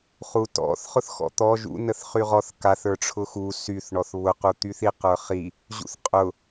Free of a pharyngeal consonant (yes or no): yes